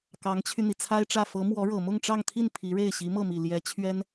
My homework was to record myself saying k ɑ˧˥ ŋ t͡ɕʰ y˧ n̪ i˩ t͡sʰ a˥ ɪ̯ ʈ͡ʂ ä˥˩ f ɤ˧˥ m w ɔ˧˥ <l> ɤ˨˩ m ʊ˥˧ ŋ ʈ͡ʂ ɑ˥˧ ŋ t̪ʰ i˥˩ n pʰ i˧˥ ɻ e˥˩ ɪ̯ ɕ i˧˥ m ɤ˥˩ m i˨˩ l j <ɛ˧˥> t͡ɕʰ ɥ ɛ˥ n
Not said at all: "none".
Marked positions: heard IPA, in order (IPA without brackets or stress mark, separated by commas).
ɻ, ɛ˧˥